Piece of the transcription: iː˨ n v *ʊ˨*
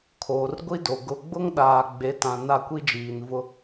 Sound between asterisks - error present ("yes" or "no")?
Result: yes